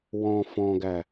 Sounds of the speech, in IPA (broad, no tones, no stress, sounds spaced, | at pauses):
w ɔ̃ f ɔ̃ ɡ æ